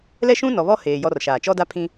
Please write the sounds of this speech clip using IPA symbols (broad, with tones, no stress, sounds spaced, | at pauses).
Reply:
l ɛ˦ ʃ ũ˦ n ɔ˨ β ɔ˦ h eː˨ j ɔ˦ r ʃ aː˨ t͡ʃ ɔ˦ d a˦ pʰ ĩ˦